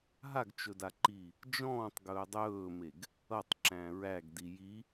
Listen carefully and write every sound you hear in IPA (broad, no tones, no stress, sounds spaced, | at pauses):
ɦ a ɡ t͡ʃ ɵ d a ǃ iː | d͡ʒ ɔ̃ː tˤ ɡ ɵː dˤ ɵː m e ɡ | ʌ tˤ ǁ æ̃ ɹ æ ɡ d i j i